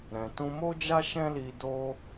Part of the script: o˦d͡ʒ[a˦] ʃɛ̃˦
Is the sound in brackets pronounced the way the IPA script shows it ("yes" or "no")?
yes